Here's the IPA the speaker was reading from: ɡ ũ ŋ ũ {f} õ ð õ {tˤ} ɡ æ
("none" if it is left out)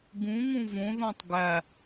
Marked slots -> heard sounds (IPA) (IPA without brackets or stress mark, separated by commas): v, tˤ